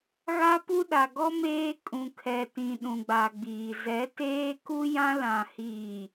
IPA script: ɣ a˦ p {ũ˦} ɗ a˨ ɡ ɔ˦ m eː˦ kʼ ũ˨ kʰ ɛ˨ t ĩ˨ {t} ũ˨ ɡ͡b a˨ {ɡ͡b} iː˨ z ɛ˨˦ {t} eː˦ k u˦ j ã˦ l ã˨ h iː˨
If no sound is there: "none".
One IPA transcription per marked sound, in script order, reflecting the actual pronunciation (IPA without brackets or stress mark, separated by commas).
u˦, ɗ, ɡ͡b, t